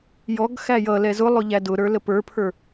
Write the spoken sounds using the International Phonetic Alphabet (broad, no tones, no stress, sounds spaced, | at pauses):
j ɔ ɡ x æ j ʌ l ɛ z ʊ lˠ ʊ ʎ æ d ʊ ɾ ə˞ l ə p ə˞ pʰ ə˞